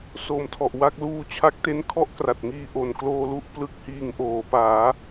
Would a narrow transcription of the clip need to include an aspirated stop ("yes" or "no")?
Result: yes